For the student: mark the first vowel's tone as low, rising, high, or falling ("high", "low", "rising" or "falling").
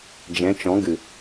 rising